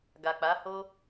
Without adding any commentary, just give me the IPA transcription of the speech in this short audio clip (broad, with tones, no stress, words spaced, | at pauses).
ɡa˨k͡pa˨˦ho˦